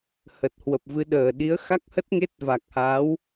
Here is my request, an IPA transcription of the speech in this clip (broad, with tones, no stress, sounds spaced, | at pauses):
h ə˨˩ t̚ h w ə˨˩ p̚ v ɨ˨˦ ɗ əː˨˩ ɗ i˨˦ ə̯ x a˦˥ k̚ h ə˦˥ t̚ ŋ e˦˥ t̚ v a˨˩ k̚ h aː˨˦ w